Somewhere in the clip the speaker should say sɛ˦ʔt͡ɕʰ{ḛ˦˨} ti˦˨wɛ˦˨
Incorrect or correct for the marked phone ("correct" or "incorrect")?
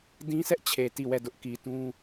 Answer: incorrect